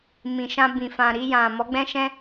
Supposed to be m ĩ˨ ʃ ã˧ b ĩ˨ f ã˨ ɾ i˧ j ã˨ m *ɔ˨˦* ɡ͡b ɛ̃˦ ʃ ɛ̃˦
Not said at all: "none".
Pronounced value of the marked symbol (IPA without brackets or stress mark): ɔ˨˦